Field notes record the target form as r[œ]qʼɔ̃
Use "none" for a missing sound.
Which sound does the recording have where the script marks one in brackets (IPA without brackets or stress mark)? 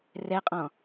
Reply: ɛ